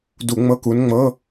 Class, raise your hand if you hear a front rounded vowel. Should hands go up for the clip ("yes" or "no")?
no